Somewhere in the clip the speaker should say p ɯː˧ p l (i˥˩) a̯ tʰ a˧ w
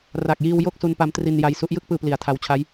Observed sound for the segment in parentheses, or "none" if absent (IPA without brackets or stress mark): i˨˩